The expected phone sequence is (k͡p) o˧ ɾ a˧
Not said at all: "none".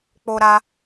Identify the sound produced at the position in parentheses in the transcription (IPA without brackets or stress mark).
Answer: k͡p